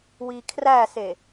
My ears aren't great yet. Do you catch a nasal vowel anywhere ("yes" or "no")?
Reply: no